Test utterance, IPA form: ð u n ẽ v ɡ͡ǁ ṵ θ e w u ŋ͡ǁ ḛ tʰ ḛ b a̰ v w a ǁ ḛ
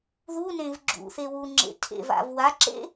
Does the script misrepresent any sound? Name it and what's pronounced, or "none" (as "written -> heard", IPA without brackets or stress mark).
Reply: b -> v